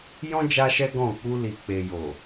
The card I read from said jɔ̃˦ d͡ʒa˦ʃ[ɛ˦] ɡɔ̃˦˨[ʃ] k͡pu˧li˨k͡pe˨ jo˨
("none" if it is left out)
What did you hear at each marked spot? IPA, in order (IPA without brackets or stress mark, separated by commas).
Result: ɛ˦, none